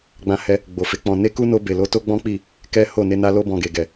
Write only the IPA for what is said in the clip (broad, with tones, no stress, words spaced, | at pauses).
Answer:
ɡ͡bã˧hɛ˧ | ɡ͡bo˨fe˨˦k͡pɔ̃˧ ne˦ ku˦ no˧be˨lo˨˦ to˦ɡ͡bɔ̃˦k͡pi˦˨ | kɛ˦ho˦˨ ne˧na˧lo˧bɔ̃˨ ɡe˨ɡɛ˨